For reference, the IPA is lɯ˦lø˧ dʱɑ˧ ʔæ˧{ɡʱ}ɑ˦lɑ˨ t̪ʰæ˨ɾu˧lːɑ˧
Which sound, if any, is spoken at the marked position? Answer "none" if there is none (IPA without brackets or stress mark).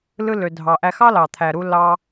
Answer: x